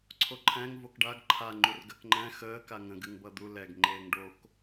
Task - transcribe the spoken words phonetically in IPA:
ǀʰ o ǃʰ æ̃ ŋ v o k ɖ a ɡ ǃʰ a ŋ͡ǃ u r ɡ ɜ k ŋ͡ǃ æ̃ x əː k a ŋ ə̃ ɡ ɨ ŋ b ʌ d̪ u l ɛ ɡ ŋ͡ǃ eː ŋ ɖ o k

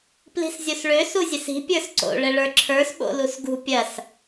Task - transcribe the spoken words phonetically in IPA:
p l i̤ s zʲ o s ɭ ø s u zʲ ɘ s i̤ pʲ ə˞ s ǀ o̰ ɭ ɘ ɭ ə˞ ǁʰ ə˞ s ɓ o̰ l u s ɡ ṳ pʲ ɐ s

